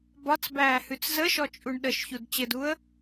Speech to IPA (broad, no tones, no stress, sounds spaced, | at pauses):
b ɒ t͡s b æː h ʉ t͡s z ə ʃ ɔ t͡ʃʼ u ɳ ɗ ə ʃ ç u d t͡ɕ ɘ d u ə̯